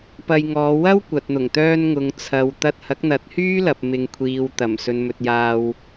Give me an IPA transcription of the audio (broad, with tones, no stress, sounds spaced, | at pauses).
p ɐ˧ j ŋ ɔː˨˧ w ɐ˥ w kʷ ɐ˨ t̚ n̪ ʊ˨˩ ŋ t̪ œː˧ n ŋ ʊ˨ ŋ t͡sʰ ɐ˨ w t̪ ɐ˧ t̚ h ɐ˨˥ k̚ n̪ ɐ˨˥ t̚ h yː˥ l ɐ˨ p̚ m ɪ˨ ŋ kʷʰ iː˨ w t̪ ɐ˨˩ m s ɵ˨ n m ɵ˨ t̚ j aː˧ w